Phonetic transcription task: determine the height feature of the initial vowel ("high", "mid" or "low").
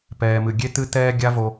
mid